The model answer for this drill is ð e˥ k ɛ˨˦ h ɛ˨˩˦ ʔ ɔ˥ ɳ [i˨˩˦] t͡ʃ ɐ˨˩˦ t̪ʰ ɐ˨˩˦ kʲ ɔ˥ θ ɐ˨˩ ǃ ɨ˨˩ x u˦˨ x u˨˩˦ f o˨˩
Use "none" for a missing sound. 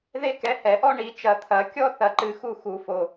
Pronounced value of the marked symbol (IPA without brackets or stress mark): i˨˩˦